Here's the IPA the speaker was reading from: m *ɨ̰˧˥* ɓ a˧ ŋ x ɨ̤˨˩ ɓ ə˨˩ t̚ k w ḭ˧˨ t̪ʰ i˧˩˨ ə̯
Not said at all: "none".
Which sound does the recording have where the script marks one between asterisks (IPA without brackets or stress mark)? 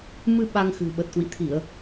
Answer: ɨ˧